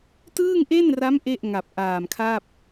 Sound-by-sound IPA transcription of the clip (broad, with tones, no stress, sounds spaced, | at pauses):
t ɯː˥˩ ŋ ʔ e˥˩ n r a˦˥ m ʔ e˥˩ ʔ ŋ a˨˩ p̚ ʔ aː˨˩ m kʰ a˥˩ p̚